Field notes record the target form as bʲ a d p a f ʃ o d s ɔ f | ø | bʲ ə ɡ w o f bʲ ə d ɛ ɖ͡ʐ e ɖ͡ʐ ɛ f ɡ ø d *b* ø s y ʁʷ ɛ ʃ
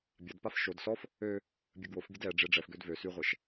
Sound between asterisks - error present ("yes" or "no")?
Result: yes